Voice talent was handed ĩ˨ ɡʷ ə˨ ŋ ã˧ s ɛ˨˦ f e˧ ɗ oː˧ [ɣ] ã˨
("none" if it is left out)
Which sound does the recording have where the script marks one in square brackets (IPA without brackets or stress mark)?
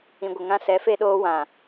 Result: w